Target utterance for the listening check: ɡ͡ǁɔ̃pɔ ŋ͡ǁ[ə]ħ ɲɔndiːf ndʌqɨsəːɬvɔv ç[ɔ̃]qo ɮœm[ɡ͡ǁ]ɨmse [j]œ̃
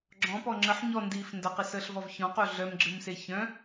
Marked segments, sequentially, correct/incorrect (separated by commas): correct, correct, correct, incorrect